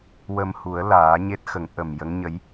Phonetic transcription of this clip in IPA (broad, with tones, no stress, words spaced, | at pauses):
wə˧mhu˨˩˦ə̯ laː˨˩˦ɲe˦˥t̚xə˨˩˦ŋ ʔə˨˩mjə˧˥ŋɲə˧˥j